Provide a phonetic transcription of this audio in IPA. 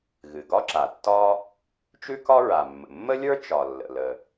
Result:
ɣ ɨ˩ ɡ ɒ˥ ǁ a˩ tː ɒ˥ | t͡ʃ ʉ˥ k ɒ˥ ɹ a˩ mː ə̰˩ mː ə˥ lʲ ə˞˥ t͡ʃ ɒ˩ lː ə̰˩ l ə˩

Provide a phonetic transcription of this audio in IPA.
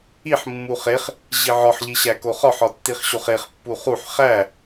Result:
i ħ mː u χ e χ | ʑ i ʕ ɒ ħ ʎ i ɕ æ k o χ ɒ ħ ɒ tː i χ ɕ o χ e χ pː u χ u ħ χ æ

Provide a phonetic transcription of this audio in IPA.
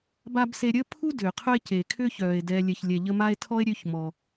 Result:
b a˥ b s e˦ ɾʲ əː˥ pʰ u˥ d ʏː˩ qʰ œ˦ e̯ c e˩ kʰ ʏː˥ ç œː˩ e̯ d ɛ˨ lʲ ɛ˨ ç lʲ ɛ˨ ʎ ə˦ m a˥ e̯ tʰ ɔ˥ e̯ ɾʲ ø˦ ç m ɔ˩

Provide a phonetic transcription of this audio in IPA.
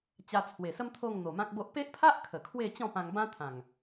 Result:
t͡ɕ a˧ t͡sʰ w e˨˩ s ə˦ m t̪ʰ o˥˧ ŋ n̪ o˨˩ m ã˦ k̚ b o˦ ʔ p e˦ ʔ pʰ a˦ ʔ kʰ ə˨˩ kʰ w e˥˧ t͡ɕ ɔ̃˥˧ p ã˧ ŋ b ã˦ t̪ʰ ã˨˩ ŋ

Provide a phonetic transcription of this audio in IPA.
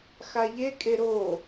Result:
x a ʎ e kʼ e ɾ o

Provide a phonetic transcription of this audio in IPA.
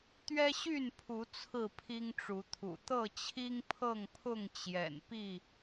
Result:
t̪ ɥ ɛ˦ ɕ y˥˨ n pʰ u˨˦ t͡sʰ ɹ̩˥˨ pʰ i˦ ŋ ʈ͡ʂ u˨˦ t̪ʰ ṵ˨˩ t̪ ɤ˥˨ t͡ɕʰ i˦ ŋ pʰ ɤ˥˨ ŋ pʰ ʊ˥˨ ŋ t͡ɕ j ɛ̰˨˩ n p i˥˨

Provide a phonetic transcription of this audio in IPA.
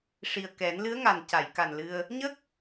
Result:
ʂ i˨˩ ə̯ k ɛ˨˩˦ n l ɨ˧˥ ə̯ ŋ a˨˩ n c a˨˩˨ j k a˨˩ n l ɨ˧ ə̯ | ɲ ə˦˥ k̚

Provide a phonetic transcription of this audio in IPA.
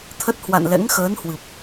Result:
t̪ʰ ə˦˥ t̚ h w a̰˧˨ n l ɛ̰˧˥ ŋ x əː˨˦ n h w ɨ˨˩ p̚

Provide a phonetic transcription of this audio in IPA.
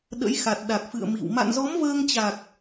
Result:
ɗ ə̰˧˥ j x a˨˩ t̚ ɗ a˨˩ k̚ f ɨ̰˧˨ ə̯ m ḭ˧˨ w m a̰˧˨ n z ɔ˨˦ m v əː˧ ŋ t͡ɕ a˨˩ k̚

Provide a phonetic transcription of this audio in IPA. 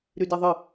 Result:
ɾ y d ɛ ðˤ ɨ

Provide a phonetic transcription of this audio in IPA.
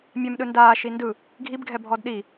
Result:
mʲ ɛ m ɗ ɯ n d aː ʃ i n d ɯ | ɡʱ i b ɡʱ ɛ bʱ ɔ d ɗ i

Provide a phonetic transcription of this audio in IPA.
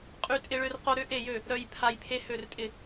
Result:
qʼ y˥ tʼ ɪ˥ ɭ ø˥ r q o˥ ɾ ʏ˥ ʔ e˥˨ j ø˥˨ | ɾ œ˥ j pʰ a˥ j pʰ e˥ h ø˥˨ r tʼ ɪ˥˨

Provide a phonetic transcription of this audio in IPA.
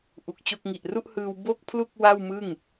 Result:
ʔ u˨˩ k̚ t͡ɕ o˥˩ k̚ ŋ i˨˩ ʔ r u˥˩ ʔ h ɯː˧ w b o˥˩ k̚ pʰ l u˥˩ k̚ w a˥˩ w m ɯ˥˩ ŋ

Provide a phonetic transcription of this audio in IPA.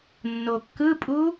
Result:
nː o kː ɯ pʼ u

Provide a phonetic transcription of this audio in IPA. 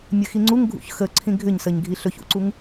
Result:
mʲ ə x i ŋ͡ǀ u ŋ ɡʱ ṵ ç x ə ǀʰ ĩ ɡʱ ʏ ɲ s ə ɲ ɡʱ i ɬ ɵ ç ṵ ǀ u ŋ

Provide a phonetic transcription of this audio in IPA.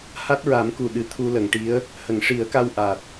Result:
h a˦˥ t̚ ɹ a˨˩˦ m k u˨˩ ɗ ɨ˨˩˨ t̪ʰ u˧ l ə˨˩˨ ŋ ʈ i˧˥ ə̯ | h ə˨˩˨ ŋ ʂ i˨˩˦ ə̯ k a˧ w ʔ a˨˩ t̚

